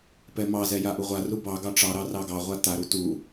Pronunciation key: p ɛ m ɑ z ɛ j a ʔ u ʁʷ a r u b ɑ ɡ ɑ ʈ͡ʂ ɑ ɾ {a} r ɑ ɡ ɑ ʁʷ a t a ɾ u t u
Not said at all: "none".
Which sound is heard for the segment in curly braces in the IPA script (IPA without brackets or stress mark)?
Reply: ɑ